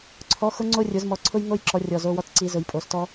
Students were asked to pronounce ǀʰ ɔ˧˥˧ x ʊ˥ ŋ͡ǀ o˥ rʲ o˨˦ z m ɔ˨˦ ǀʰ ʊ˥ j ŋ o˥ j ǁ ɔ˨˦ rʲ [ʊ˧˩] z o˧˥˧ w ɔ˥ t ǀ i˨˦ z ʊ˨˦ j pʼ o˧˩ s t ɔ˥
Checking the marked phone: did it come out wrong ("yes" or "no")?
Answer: yes